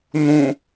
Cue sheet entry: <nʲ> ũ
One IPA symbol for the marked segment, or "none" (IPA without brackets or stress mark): n̪